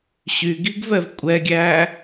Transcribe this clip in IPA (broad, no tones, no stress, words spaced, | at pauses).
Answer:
ɕyɡiɡvɛv kʷʼɛɡʲæ